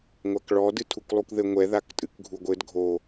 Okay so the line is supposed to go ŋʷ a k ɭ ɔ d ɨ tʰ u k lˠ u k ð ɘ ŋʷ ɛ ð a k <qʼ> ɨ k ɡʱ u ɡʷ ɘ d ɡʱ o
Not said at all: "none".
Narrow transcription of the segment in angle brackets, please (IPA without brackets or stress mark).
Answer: tʼ